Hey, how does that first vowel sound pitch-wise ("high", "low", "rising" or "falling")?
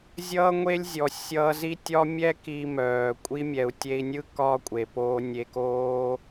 high